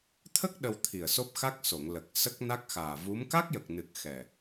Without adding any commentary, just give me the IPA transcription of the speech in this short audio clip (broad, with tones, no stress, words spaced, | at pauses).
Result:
t̪ʰə˦˥k̚ ɗə˧w t̪ʰi˨˩ə̯so˦˥p̚xa˦˥k̚so˨˩˨ŋ lə˨˩k̚ sə˦˥k̚na˦˥k̚xaː˨˩ vu˧˥m ka˦˥k̚jə˨˩k̚nɨ˨˩k̚ xɛ˨˩